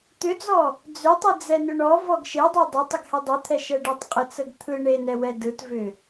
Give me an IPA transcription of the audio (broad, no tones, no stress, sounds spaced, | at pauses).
t̪ ʏ d͡z ɔ | d͡z ʏ tˤ ɯ d͡z ɛ n ʏ ɳ ɔ v ɔ ɡ ʃ e dˤ e dˤ ʏ tˤ ə ɡ h ɛ dˤ ɯ t̪ʰ ɛ ʃ ɛ ɖ ɛ tˤ qʼ ə t͡s ə ɡ t̪ʰ ɯ ɳ e n ɛ w ɛ d ɯ t v ʏ